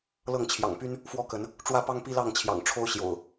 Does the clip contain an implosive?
no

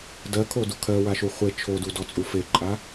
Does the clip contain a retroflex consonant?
no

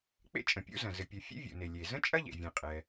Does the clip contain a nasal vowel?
yes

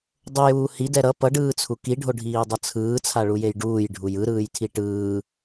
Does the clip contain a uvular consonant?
no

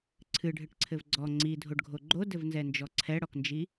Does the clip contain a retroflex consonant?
yes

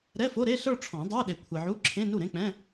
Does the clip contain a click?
yes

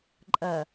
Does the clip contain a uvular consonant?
no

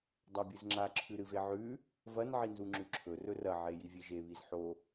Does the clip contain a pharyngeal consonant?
yes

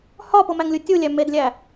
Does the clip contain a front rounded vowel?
no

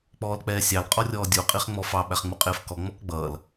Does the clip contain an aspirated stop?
no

